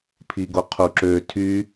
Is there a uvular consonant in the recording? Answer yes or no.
yes